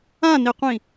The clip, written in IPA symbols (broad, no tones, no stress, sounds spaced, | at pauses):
ã n i qʷ ĩ